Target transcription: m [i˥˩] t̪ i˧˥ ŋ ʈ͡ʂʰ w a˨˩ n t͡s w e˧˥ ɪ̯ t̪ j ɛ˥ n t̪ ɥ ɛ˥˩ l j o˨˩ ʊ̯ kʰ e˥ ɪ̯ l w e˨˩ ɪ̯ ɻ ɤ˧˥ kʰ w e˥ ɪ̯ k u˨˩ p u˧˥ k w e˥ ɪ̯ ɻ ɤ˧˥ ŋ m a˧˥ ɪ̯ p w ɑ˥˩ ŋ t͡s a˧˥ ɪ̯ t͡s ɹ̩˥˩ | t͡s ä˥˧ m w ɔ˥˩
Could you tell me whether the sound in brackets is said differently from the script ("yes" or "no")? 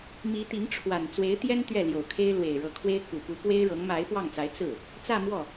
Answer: yes